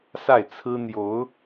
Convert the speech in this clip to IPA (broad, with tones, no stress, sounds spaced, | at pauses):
s a˥˩ ɪ̯ t͡sʰ ɹ̩˥ n̪ j o˧˥ ʊ̯